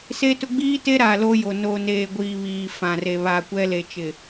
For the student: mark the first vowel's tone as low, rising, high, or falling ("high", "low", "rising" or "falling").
high